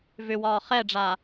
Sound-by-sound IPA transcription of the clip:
v ʏ w ɒː χ ɛ ɖ͡ʐ a

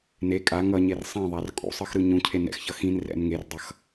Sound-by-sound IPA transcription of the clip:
n e kʼ a ŋ ʌ ɲ e r sˤ ĩ ðˤ a r kʼ ṵ sˤ ɯ x ɾ ɯ ɲ ũ cʰ e n ɛ̰ x ç ʌ x ĩ n r ɛ̰ n ŋ e r dˤ ʌ x

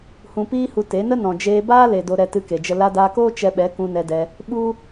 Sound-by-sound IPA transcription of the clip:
h ũ˧ p iː˦ h u˧ t e˨˦ n ə˦ n ɔ̃˨ d͡ʒ eː˧ b aː˦ l e˨ d o˧ ɾ ɛ˧ t ɨ˧ k e˨ d͡ʒ ə˧ l a˧ d aː˧ k oː˦ t͡ʃ ɛ˧ ɓ ɛ˨˦ k ũ˧ n ɛ˧ d ɛ˧ | ɓ u˦

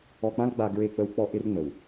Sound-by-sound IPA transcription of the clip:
ɔ˨ k͡p ã˦ l ɡ͡b a˨ ɡ ɹ e˦˨ k͡p ə˦ w k͡p ɔ˦ ʔ ɪ˦ r ŋ͡m ə˨ w

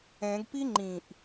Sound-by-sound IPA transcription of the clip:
ɛ̃ ɡ p i ŋ͡ǃ ĩ ʔ

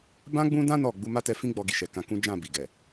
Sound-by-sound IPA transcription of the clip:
b ã˦ ɡ͡b ũ˦ d ã˦ n ɔ˦˨ ɡ͡b u˧ m a˦ t ɛ˧ f ĩ˦ ɡ͡b ɔ˧ ɡ i˨ ʃ ɛ˨ k ã˧ k ũ˦ d͡ʒ ã˦˨ b i˨ ɡ ɛ˨

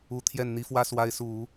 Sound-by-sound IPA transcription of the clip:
u˧˥ t̪ʰ j ɛ˥˩ n n̪ i˥ f w ä˥ s w a˧˥ ɪ̯ s u˨˩˦

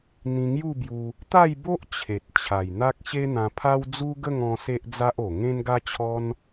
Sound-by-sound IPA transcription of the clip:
n̪ ĩ˧ ŋ j u˥˧ b j u˧ | t̪ a˥˧ j b o˦ ʔ t͡ɕʰ e˨ t̚ t͡ɕʰ a˨˩ j n̪ a˦ k̚ ɕ e˦ n̪ ã˧ pʰ a˦ w d͡z u˦ ɡ ə˥˧ ŋ ɔ̃˧ s e˦ ʔ d͡z a˦ ʔ o˨˩ ŋ ẽ˦ n ɡ a˦ t͡ɕʰ ɔ˦ n

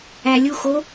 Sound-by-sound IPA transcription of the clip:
æ lʲ u x o

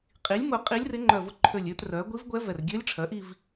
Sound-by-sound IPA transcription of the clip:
qʼ i˩˥ lʲ m ʊ˧˩ qʼ i˧˥ lʲ r ɪ˧˥ ŋ͡ǃ œ˧˩ v ʊ˧˥ ǃʰ ø˧˩ lʲ ø˥˧ t r œ˩˥ ɡʷ i˧˥ v ɡʷ ɛ˧˥ v ɛ˧˩ r ɡʲ ø˧˥ lʲ ʈ͡ʂʰ œ˩˥ ʔ i˥˧ v

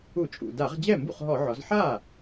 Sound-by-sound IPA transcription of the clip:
u˧˩˧ t͡ʃʼ ṵ˨˩ d a˧˩˧ ʁ d͡ʑ ɛ˥˩ m b ṵ˥˩ χ ɦ ɔ˧˩˧ ʕ ɔ˩˧ z ħ a˥˩

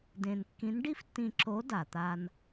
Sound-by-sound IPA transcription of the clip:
d ẽ˧ n kː ĩ˧˥ n ɖ i˥ f tː ĩ˧ ǁ o˧˥ d a˩ t̪ a˧ n

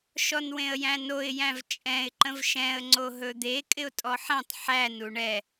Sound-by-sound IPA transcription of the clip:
ʃ ɔ n w ẽ ə̯ j æ̃ n o ɪ̯ j æ̃ v t͡ʃʼ ɛ̃ ɪ̯ ǃ ə̃ v ʃ ɛ̃ ə̯ ŋ͡ǀ o ɦ ɵ d̪ e kʼ ɪ ʊ̯ tʼ ɔ ħ æ̃ tˤ ħ æ n u ɳ ɛ

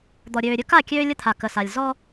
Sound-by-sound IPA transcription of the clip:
d̪ ɔ˨ ɾʲ øː˨ ɾʲ ɵ˦ k a˦˨ kʲ øː˦ lʲ ə˦ t̪ʰ a˨ k ə˨ s a˨ lʲ z ɔ˦

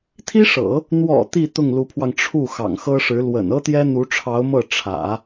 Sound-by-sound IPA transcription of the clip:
t̪ʰ i˥ ʂ ɤ̰˨˩˦ | n̪ w ɔ̰˨˩ t̪ i˥˧ t̪ ʊ˥˩ ŋ l u˧˥ pʰ w ɑ˧ ŋ ʈ͡ʂʰ u˥˩ x ɑ̰˨˩ ŋ x ɤ˥ ʂ ɻ̩˧˥ l w ə̰˨˩ n ɤ˥ t̪ j ɛ˥ n̪ u˧˥ ʈ͡ʂʰ ɑ˧˥ ʊ̯ m ɤ˥˩ ʈ͡ʂʰ ä̰˨˩˦

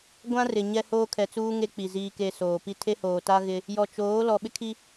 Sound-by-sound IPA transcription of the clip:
ɡʷ ã˦ r ɪ˨ ɲ ɛ˦ h oː˦ kʰ ɛ˨ t͡s uː˦ ŋ e˦ k͡p i˨ z iː˨ k e˨ s oː˨ p i˦ tʰ e˦ h oː˨ t a˦ ɣ ɪ˦ | j ɔ˨ t͡ʃ oː˨˦ l ɔ˨ ɓ ɪ˦ kʰ i˦

